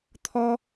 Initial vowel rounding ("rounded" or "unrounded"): rounded